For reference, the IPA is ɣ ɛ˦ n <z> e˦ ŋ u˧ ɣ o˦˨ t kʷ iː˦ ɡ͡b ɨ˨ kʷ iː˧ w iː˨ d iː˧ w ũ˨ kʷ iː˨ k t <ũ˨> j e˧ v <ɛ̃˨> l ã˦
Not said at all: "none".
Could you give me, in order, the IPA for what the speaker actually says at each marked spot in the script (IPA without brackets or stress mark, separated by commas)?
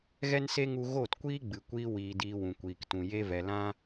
s, ũ˨, ɛ˨